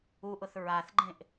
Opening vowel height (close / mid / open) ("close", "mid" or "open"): close